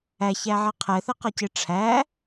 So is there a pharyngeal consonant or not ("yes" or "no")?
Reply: yes